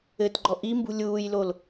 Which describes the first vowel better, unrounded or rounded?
unrounded